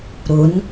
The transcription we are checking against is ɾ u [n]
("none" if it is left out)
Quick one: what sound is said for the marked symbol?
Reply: n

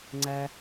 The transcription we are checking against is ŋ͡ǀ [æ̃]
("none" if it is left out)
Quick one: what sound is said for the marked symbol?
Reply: æ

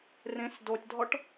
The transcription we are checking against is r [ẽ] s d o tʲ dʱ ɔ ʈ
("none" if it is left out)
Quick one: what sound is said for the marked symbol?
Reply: ẽ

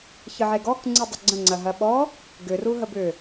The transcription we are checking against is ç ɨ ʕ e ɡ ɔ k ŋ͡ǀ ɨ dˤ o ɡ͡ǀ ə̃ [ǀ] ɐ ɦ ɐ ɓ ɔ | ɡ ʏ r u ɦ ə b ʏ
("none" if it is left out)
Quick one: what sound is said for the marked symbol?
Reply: ŋ͡ǀ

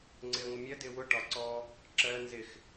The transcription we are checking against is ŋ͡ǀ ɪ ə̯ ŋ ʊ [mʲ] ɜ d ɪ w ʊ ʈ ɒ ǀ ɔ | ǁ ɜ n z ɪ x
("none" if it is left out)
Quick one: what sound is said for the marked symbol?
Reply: mʲ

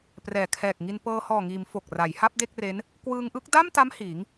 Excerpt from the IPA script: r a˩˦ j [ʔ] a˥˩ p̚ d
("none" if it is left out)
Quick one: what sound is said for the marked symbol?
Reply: h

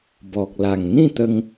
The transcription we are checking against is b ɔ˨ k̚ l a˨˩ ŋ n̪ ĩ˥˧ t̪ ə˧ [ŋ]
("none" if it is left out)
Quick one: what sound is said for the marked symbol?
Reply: ŋ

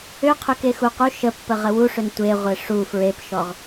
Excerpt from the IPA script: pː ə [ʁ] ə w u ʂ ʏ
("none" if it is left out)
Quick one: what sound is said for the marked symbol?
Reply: ʁ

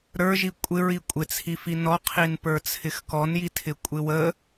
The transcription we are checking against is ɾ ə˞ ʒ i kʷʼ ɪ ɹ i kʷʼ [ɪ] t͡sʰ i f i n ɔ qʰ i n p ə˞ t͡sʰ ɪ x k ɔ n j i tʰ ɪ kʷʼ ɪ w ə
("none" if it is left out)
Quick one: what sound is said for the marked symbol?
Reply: ɪ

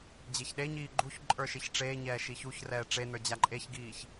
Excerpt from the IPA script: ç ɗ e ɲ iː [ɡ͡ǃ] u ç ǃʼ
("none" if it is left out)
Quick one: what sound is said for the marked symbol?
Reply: ɡ͡ǃ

